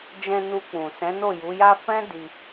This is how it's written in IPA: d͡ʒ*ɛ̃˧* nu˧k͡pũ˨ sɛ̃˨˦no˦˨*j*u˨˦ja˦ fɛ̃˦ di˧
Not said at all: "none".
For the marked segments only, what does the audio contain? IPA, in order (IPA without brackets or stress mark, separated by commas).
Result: ɛ̃˧, j